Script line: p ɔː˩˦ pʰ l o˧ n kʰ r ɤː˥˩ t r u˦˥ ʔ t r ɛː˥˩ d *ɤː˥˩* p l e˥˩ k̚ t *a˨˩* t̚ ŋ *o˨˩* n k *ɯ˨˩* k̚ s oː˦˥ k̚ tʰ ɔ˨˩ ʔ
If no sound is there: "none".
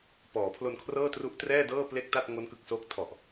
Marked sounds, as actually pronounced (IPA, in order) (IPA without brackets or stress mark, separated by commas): ɤː˥˩, a˥˩, o˦˥, ɯ˨˩